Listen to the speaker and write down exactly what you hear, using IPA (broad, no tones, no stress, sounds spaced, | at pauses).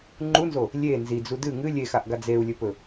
ŋ͡ǃ u n z o | lʲ e n z i d͡z u d ɨ ŋ ɨ lʲ e x a ʔ ɡ a d͡z e u̯ lʲ ɵ p ɵ